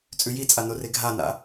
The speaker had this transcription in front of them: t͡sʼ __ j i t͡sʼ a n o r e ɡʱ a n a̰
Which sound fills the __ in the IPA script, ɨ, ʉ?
ʉ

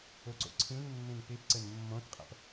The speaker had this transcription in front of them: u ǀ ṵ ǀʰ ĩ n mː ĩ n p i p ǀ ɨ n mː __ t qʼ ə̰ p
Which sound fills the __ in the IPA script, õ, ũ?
õ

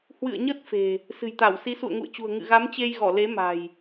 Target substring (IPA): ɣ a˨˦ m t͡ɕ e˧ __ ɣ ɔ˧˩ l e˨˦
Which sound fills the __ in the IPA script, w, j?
j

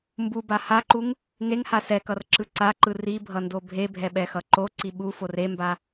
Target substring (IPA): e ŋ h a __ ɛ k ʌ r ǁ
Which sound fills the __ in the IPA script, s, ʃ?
s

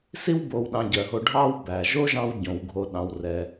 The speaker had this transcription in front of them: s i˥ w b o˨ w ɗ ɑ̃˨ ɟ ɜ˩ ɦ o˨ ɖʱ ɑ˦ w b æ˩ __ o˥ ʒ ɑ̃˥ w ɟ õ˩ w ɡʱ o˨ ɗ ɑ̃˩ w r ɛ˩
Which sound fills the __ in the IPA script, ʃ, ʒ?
ʒ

